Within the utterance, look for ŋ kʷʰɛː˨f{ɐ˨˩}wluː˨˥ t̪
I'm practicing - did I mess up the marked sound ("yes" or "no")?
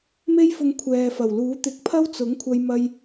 no